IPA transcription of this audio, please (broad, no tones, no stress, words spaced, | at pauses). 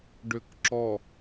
ɖʏkǁɔ